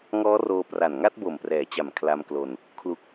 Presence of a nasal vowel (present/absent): absent